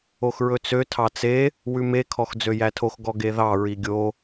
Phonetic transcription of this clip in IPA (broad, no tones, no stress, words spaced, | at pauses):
oxɹɵt͡sø tʰɑt͡se | wʉme kʰɔxd͡zøjætʰox ɡɔɡeðɑ ɹiɡʲo